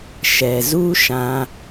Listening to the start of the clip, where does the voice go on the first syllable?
low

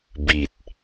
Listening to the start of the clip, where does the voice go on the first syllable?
low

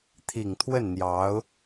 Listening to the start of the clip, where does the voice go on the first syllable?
low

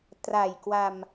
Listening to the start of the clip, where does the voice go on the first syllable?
low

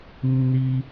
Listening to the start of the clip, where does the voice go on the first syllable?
high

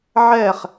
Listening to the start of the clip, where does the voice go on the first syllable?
falling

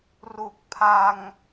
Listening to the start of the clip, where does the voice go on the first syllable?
low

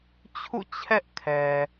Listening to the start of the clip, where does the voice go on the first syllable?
falling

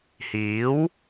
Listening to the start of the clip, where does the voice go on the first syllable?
rising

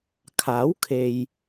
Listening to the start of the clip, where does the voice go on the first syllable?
rising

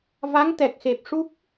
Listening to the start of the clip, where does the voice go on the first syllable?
rising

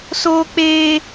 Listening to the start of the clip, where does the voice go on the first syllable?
high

